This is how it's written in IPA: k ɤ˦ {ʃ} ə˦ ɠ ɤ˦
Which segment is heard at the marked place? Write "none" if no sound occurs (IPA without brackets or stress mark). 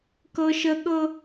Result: ʃ